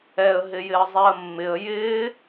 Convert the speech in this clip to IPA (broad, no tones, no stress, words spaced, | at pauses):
ɛə̯ ɦɪjɪə̯zˤɛə̯mːɪə̯ jɪː